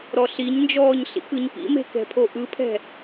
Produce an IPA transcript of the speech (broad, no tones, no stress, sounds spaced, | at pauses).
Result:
ɾ ɔ ɬ i ɲ n d͡ʒ ɔː ɲ ɬ ḭ k ɯ ɲ p ḭ m e̤ k ɛ̤ pʰ o ʔ ɯ pʰ ɛ̤